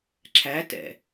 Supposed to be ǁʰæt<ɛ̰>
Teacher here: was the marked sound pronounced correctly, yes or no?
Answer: yes